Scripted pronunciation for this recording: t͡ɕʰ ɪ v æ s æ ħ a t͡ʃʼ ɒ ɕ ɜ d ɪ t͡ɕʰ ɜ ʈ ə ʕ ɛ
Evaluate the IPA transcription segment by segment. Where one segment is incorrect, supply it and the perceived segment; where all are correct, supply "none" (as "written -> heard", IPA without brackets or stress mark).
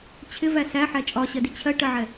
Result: a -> æ